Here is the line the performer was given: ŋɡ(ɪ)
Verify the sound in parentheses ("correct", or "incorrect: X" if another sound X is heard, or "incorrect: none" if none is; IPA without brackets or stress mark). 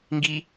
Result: incorrect: i